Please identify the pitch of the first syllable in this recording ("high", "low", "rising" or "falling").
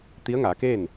rising